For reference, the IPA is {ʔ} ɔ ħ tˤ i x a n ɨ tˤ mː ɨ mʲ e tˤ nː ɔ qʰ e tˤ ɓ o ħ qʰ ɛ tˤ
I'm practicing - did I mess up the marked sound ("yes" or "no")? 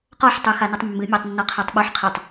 yes